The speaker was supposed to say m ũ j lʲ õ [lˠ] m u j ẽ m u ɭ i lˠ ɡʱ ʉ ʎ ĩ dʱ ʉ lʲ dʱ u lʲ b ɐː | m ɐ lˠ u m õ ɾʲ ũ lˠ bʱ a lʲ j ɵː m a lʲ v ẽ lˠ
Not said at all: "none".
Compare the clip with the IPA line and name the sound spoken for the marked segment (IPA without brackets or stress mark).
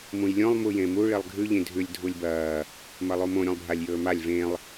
lˠ